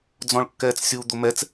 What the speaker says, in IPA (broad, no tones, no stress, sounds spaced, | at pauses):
d͡z ɔ̃ ɭ kː ɛː t͡s sʲ u d̪ o m ɛ t͡s